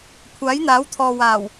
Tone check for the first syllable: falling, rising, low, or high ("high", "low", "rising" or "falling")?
rising